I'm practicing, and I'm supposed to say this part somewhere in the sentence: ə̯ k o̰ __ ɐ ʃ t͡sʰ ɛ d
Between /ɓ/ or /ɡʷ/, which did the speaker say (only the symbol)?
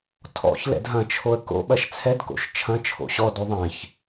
ɓ